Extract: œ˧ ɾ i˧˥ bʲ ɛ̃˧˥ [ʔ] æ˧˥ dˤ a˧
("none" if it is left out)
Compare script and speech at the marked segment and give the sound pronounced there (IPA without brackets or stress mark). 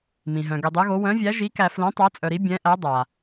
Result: ʔ